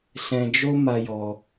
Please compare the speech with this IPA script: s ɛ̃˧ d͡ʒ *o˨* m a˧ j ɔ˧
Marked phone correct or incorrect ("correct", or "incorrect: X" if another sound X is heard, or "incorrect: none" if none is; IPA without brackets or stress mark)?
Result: incorrect: o˦